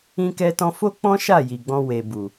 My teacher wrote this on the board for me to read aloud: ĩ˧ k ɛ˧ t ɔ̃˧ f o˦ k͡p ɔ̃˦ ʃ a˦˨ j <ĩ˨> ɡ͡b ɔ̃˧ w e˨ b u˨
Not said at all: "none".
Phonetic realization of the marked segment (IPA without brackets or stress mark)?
i˨